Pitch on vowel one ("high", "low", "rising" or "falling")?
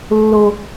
high